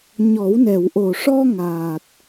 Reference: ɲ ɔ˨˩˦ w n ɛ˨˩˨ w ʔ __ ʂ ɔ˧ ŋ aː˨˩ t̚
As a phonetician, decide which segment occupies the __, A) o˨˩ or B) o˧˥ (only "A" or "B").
A